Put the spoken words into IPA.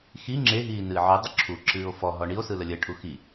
x i ŋ͡ǁ e ɦ iː n ɨː ʕ ɨ dˤ ə ǁʰ u ǁ ɨː o̯ f ɔ ɦ ɔ ɳ i o̯ s ɯ l ə lʲ ə ʈʰ u x i

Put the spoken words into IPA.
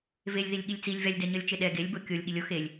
v e lʲ ð i lʲ ɠ i lʲ t͡s i lʲ v ɛ lʲ d ɛ ɲ ʌ lʲ t͡ʃ e ɗ ɛ ɡ e lʲ b o kʲ o lʲ ɠ i lʲ o x e lʲ

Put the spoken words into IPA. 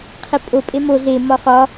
qʰ e pʼ o pʼ e m o ɮ e m ɒ χ ɒ

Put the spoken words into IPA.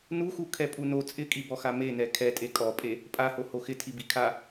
n u x u kʰ ɛ pʼ u n o t͡sʼ ɪ kʼ i b ɔ x a m e n ɛ kʰ ɛ tʼ e kʼ ɔ pʼ e | pʼ a h o h o x ɪ tʰ i b i kʰ a

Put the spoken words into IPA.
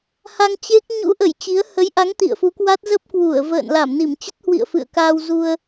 h a˧ ŋ t͡ɕ e˦˥ k̚ ɲ ṵ˧˥ ʔ ə˧˩ j t͡ɕ i˨˦ ə̯ h ə˨˦ j ʔ a˨˦ ŋ t̪ ḭ˧˨ ə̯ f u˨˦ k w a˦˥ t̚ z ə˦˥ p̚ k w u˧˩ ə̯ v ə̰ː˧˨ n l a˧˩ m n i˧˩ m t͡ɕ ə˦˥ t̚ h w ḭ˧˨ ə̯ f ɨ̰˧˨ ə̯ k aː˧ w z u˧ ə̯

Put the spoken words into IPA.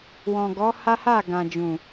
w ɔ̃˨ ɡ ɔ˨˦ h a˦ h a˦˨ ɡ ã˨ d͡ʒ ũ˨

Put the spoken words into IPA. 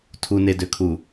tʰ u n e d ø kʰ u

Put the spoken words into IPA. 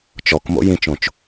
t͡ʃ ɔ k m o̰ j ĩ t͡ʃ õ t͡ʃ

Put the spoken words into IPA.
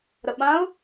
ɾ ə ɓ ã ʊ̯

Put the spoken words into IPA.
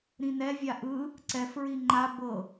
ɾ ĩ n ɛ vʲ a ʔ ɯ | ǀ ɛ f ɹ i ŋ͡ǃ a b ɤ

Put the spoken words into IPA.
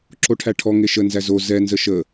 ǁ o ʈʰ æ ʈʰ ɔ ŋ e ʃ ə n z æ z o z ɛ n z ə ʃ ə

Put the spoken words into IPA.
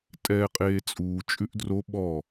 tʼ ɛː qʼ eː t͡sʼ uː t͡ʃʼ ʉ ʔ d r o ɓ ɔ

